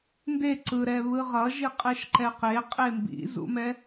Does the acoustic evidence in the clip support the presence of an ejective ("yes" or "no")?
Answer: yes